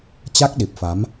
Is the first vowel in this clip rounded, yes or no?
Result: no